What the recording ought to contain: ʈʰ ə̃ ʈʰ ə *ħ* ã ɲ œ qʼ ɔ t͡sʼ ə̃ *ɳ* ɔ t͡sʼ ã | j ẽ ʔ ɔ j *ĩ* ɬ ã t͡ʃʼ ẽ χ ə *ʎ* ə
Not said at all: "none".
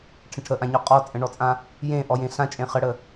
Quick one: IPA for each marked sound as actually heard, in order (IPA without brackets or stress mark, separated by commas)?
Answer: ʔ, ɳ, ẽ, ɽ